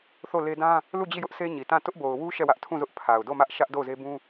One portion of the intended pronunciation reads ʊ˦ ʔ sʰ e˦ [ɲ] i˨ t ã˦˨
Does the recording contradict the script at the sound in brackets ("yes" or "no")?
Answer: no